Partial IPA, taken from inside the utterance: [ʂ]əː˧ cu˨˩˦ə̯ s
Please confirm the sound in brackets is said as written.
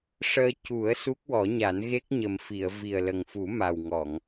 yes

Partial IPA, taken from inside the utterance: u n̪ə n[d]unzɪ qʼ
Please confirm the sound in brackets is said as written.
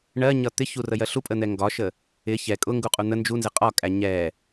no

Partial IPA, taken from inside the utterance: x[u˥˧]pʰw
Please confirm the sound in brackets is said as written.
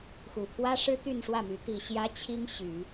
no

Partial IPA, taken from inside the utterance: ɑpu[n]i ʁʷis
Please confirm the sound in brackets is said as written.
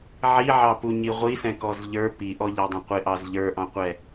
no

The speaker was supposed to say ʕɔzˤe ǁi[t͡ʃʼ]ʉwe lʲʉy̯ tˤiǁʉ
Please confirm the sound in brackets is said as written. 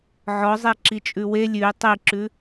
yes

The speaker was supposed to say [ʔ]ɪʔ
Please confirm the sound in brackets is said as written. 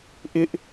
yes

